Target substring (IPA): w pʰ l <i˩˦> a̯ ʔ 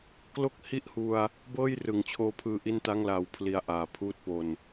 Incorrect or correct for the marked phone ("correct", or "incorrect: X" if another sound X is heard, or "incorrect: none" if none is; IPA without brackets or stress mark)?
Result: correct